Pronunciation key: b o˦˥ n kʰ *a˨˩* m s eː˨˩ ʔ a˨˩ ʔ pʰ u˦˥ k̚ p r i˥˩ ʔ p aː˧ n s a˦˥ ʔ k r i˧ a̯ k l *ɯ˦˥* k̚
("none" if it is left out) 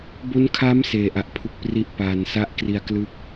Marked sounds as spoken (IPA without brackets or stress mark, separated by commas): a˦˥, ɯ˦˥